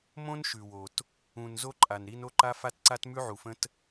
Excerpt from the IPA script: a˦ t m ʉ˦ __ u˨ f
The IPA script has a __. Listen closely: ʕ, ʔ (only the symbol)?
ʕ